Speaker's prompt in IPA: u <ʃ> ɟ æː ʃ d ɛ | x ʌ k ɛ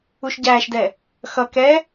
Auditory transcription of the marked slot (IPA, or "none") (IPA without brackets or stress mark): ʃ